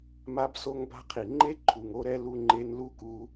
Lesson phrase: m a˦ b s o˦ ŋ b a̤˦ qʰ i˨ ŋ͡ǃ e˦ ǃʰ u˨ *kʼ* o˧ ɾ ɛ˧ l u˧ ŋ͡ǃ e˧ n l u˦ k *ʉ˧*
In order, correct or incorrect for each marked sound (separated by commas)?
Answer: incorrect, incorrect